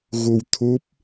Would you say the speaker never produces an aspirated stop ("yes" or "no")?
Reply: no